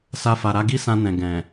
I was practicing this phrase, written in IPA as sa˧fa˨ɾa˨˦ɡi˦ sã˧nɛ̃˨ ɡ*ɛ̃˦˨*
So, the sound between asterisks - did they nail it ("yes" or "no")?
no